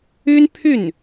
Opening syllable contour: high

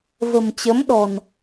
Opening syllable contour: low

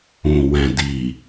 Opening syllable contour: low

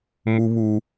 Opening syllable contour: high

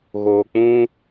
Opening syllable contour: low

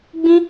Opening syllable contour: high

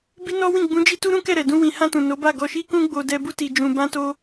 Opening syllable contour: high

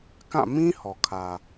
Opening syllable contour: falling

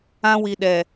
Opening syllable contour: high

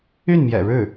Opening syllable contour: falling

